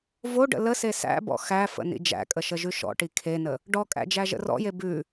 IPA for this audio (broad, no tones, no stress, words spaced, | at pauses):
voɖə̰ ləse sæ̰bɔ̰ xæfə̰ nḭd͡ʒæ̰kʼə ʃəʒʉʃɔ̰ʈi kʰenə | ɖɔkʼæ̰ d͡ʒæʒə̰rɔ̰je bʉ